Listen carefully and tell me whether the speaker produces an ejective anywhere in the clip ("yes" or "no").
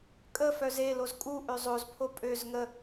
yes